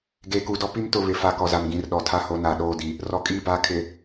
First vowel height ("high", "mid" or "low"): mid